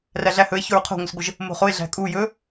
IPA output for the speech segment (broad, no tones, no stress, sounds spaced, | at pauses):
r æ ɮ æ h ɵ e̯ ç o ɹ qʰ o̤ ŋʷ ə s ɡʷ ə ʒ | m o̤ χ o e̯ ɮ æ̤ kʼ u j ɵ